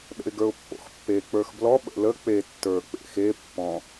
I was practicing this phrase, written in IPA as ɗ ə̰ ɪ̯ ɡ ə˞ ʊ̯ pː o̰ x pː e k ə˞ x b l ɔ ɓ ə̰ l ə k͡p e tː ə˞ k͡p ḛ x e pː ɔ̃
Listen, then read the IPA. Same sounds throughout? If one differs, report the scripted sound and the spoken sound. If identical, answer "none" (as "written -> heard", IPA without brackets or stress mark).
k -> k͡p